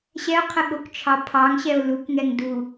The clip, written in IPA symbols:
ɕ ɛ o̯ qʰ ə ɠ o k t͡ʃʰ ɑ pʰ ɑ ŋ ɕ ɛ o̯ l u k ŋ ɛ ŋ d u

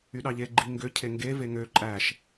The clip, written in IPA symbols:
y ɗ ɑ ʎ e ɡ͡ǃ i ŋ ɡ ø cʰ e ŋ ɡ e v e ŋ ø ǃʼ æ ʃ

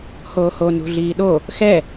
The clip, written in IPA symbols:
h oː h o n ṳ ɮ iː ɗ o | x ɛ

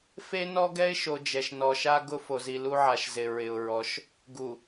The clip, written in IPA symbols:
f e˦ n ɔ˦ ɡ ɛ˦ ɪ̯ ʃ o˨ d͡ʒ ɛ˨ ʃ n ɔ˨ ʃ a˦ ɡ ʊ˦ f o˨ z i˨ l u˦ ʕ a˨ ʃ z ɪ˨ ɹ ɪ˨ ʊ̯ ɹ ɔ˨˦ ʃ | ɡ u˨

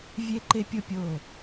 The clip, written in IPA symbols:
vʲ e˦ ǃ e˦ pʲ o˦ pʲ o˦˨

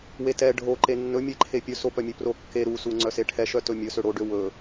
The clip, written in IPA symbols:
w e t ɛ ɖʱ o ǃ e nː ɵ mʲ e ǃʰ e pʲ ɵ s o p œ mʲ ø p r o kː e ɾ u s u ŋ͡ǀ œ s e ʈʰ ɛ ʃ œ t ɵ mʲ ɵ s ø ɽ o ɖ ø w ɵ

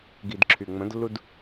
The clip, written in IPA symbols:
ɡ i d ǁʰ y ŋ͡m ə̃ d lː u d

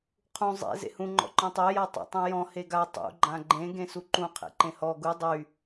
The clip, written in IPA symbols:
qʰ ũ zˤ ḛ z ḛ h ũ ŋ͡ǃ ɔ̰ ǃ ɔ̃ tˤ e j a tˤ ḛ tˤ ũ j ɔ̃ h e ɡ a tˤ ṵ ɡ͡ǃ ã ɡ͡ǃ ẽ ɡ ẽ s u ǃ ũ qʰ ḛ ǃ ẽ h ɔ ɡ u dˤ y

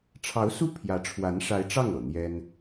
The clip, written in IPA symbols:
ʈ͡ʂʰ ɑ˧˥ ʊ̯ s u˥˩ pʰ j ä˧˥ ʈ͡ʂʰ w a˧˥ n ʂ a˧˥ ɪ̯ ʈ͡ʂ ɑ˥˩ ŋ ɤ̰˨˩ n̪ j ɛ˥ n

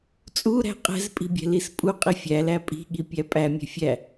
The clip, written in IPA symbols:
t͡sʼ u ɾ æ̤ qʼ ɛ̤ z pʼ i̤ bʲ ɛ̤ l i s pʼ u qʼ i fʲ æ l æ pʼ i̤ ɠ i pʲ æ pʼ æ mʲ ɛ̤ fʲ æ

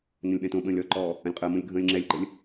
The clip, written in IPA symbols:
n ə̃ lʲ ɓ ɛ̃ t õ ɓ ə̃ː lʲ ɔ ǃ ɔː | ə̃ lʲ qʼ əː m õ lʲ ɡʱ ə̃ː lʲ ŋ͡ǁ ɛ lʲ ɡ͡ǃ ə lʲ

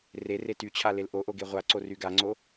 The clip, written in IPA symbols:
r e r e t y t͡ɕʰ a l e l ʔ o ʔ o ɡ e ʁʷ a ǀ o r y ɡ a ŋ͡ǀ o

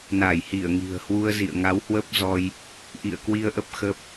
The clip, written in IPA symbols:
n a˧˩ j h i˧˩ ə̯ ŋ i̤˨˩ ə̯ h w u˧ ə̯ z ḭ˧˨ ə̯ ŋ a˨˦ w h w ə˦˥ p̚ z ɔ˧ j | ʔ ḭ˧˨ ə̯ k w i˧ ə̯ ʔ ə˦˥ p̚ x ə˦˥ p̚

